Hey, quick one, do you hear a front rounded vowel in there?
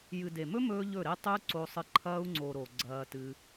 no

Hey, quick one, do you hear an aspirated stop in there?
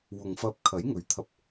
yes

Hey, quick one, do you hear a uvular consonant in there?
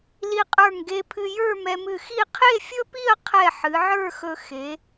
yes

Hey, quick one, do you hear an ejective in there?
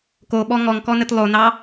no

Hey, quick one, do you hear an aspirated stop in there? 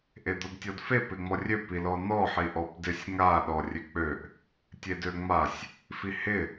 no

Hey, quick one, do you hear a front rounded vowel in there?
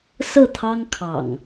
no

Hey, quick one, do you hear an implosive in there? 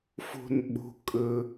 yes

